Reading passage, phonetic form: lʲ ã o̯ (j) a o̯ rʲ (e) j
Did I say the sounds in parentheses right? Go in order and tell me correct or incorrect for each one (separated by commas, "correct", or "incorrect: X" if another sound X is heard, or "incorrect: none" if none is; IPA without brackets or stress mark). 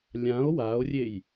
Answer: incorrect: w, correct